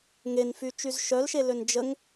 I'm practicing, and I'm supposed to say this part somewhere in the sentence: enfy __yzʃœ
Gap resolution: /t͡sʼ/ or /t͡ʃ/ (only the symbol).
t͡ʃ